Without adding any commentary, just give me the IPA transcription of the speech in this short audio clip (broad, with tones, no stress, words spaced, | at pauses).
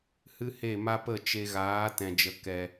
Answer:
hɨ˦he˦˨ma˦pə˦˨ t͡ʃe˧ɣaː˨˦ tɛ̃˨d͡ʒə˨ kɛ˨